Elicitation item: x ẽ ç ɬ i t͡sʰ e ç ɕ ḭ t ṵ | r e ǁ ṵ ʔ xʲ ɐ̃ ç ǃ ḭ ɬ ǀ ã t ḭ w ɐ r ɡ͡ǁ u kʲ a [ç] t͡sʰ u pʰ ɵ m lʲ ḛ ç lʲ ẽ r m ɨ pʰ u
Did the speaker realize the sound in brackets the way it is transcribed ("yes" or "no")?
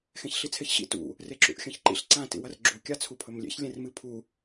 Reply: no